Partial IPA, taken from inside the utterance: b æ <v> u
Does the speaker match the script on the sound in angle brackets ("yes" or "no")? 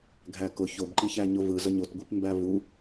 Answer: yes